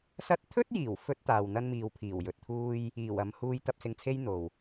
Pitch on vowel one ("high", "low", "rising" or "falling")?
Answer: high